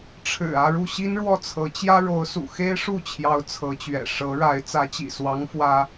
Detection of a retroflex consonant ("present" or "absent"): present